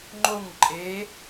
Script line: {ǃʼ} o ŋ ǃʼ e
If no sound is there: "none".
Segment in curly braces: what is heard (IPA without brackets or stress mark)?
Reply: ŋ͡ǃ